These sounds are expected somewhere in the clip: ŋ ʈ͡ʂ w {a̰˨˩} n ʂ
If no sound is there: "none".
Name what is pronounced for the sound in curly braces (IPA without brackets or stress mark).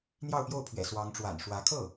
a̰˨˩